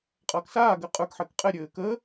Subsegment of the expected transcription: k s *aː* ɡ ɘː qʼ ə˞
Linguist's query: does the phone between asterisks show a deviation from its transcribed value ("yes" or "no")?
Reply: no